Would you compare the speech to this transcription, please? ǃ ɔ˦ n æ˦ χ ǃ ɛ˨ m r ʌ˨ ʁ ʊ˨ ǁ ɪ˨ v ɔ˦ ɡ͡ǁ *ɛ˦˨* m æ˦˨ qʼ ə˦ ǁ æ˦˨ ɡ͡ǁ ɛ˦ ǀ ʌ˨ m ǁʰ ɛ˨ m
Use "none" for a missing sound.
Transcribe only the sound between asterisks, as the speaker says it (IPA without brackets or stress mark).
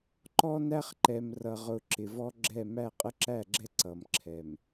ɛ˦˨